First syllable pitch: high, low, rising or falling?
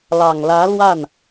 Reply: low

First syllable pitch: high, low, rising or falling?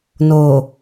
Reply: low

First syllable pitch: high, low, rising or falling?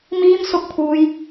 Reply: high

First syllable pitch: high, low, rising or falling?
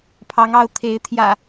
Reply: rising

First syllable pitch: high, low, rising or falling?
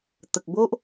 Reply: low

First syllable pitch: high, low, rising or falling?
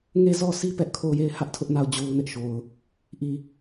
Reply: falling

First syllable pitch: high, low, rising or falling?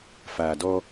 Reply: low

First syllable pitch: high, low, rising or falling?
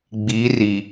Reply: rising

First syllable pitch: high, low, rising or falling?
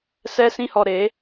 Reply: high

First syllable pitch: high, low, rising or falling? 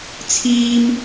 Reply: high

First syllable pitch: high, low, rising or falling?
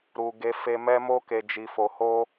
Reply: low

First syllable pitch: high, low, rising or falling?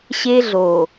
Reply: high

